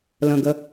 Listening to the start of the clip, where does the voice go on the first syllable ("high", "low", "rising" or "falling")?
low